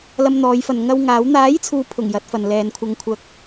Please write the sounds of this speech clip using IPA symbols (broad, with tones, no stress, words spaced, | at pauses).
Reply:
lɐ˧mn̪ɔː˨˧jfɐ˨n ŋɐ˧w ŋaː˨˥w n̪aː˨˥jt͡sʰuː˨pʰʊ˨˩ŋ jɐ˨˥t̚fɐ˨n lɛː˨˧nkʷʰɐ˧ŋkʷʰɐ˧k̚